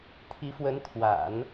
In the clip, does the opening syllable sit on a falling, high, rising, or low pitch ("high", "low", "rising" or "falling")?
rising